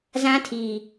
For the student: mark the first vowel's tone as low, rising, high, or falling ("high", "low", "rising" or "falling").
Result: high